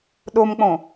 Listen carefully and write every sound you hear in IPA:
ɗ o m k͡p õ

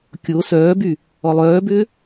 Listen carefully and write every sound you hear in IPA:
kʲ o s œː b y | ɔ lˠ œː b ʏː

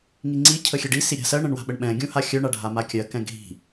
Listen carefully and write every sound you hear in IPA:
ŋ i ŋ͡ǀ i cʰ ə xʲ ɛ ɖ i s i ɾʲ a̤ s ɜ ɳ ɛ̃ ɳ w a̤ ɓ ə ɳ ɓ ɛ̃ ɡʲ ũ h a xʲ œ ɳ a ɖʱ a m a kʲ ɜ k ɛ̃ ɡʱ i̤

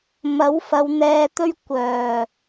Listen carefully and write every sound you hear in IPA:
m ɐ˨˥ w f ɐ˨˧ w n̪ ɛː˧ t̪ ɵ˥ ɥ kʷ œː˨˩

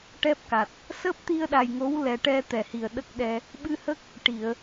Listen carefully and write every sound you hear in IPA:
ʈ ɛ˦˥ p̚ k a˨˩ t̚ | s əː˦˥ p̚ t̪ i˧ ə̯ ɗ a˨˩ j ŋ o˧˥ w l ɛ˨˩ ʈ ɛ˧ t̪ ɛ˨˩ h i˨˩ ə̯ ɗ ə˦˥ k̚ ɗ ɛ˧ | ɓ ɨ˧ h ə˦˥ k̚ | ʈ i˨˩˨ ə̯

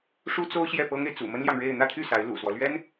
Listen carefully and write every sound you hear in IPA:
ʂ u˥ t͡s o˥ ʊ̯ ɕ j ɛ˥˩ p ɤ˥ ŋ e˨ ɪ̯ t͡s ṵ˨˩ m ə˥ n l j ɑ˨ ŋ ɻ e˥˧ ɪ̯ n̪ ä˥˧ t̪ʰ y˥˩ s a˧˥ ɪ̯ l ṵ˨˩ s w ɔ˦ l ɥ ɛ˥ n

